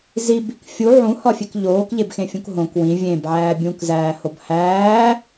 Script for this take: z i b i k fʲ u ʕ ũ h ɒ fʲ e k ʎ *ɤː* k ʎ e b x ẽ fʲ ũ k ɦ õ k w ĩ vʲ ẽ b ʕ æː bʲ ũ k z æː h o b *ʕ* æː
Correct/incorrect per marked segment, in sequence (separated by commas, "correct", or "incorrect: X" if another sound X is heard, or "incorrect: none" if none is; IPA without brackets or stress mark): incorrect: oː, incorrect: h